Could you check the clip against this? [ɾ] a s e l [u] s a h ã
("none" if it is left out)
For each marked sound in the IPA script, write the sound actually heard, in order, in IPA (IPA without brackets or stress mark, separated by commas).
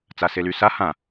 t͡s, y